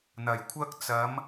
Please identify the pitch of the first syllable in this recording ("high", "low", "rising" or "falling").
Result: low